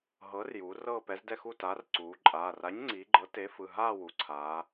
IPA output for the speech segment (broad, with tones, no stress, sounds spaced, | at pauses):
ɦ ɤː˨˥ r j uː˩˧ r ɤː˥˧ p ɛ˨˥ z d ɛ˥˧ x u˥˧ t aː˨˥ r ǀ uː˩˧ ǃʼ aː˩˧˩ r a˨˥ ɲ ŋ͡ǀ iː˩˧ ɡ͡ǃ ɤ˨˥ t e˨˥ f ɯ˩˧˩ ɦ aː˥˧ w u˩˧ ǀʰ aː˩˧